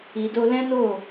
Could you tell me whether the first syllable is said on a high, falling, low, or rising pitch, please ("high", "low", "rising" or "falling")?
low